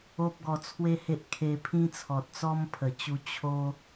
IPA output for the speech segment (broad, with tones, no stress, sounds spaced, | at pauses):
o˦ p̚ ɡ ɔ˧ t͡sʰ w e˦ h e˦ ʔ kʰ e˧ pʰ ĩ˦ t͡sʰ ɔ˨ t̚ t͡s ɔ˦ m pʰ ə˨˩ t͡ɕ u˧ t͡ɕʰ o˧